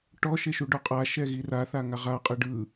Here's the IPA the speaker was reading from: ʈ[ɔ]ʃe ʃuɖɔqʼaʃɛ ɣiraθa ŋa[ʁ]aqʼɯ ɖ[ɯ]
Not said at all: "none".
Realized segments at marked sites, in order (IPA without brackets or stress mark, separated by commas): ɔ, ʁ, ɯ